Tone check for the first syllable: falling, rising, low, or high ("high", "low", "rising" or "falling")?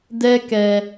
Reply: high